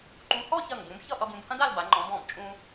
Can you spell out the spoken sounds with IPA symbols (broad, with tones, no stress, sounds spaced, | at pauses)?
ǃ ũ˧ h ɔ˥˧ ç ɐ˧˩ ŋ b ũ˩˧ b ç ʌ˥˧ ʔ ʌ˧ b ũ˩˧ b h ɐ̃˥ d a˥˧ l b a˩˧ ŋ͡ǃ ɔ̃˩˧ b ɔ̃˧˩ b t͡ʃʼ ũ˧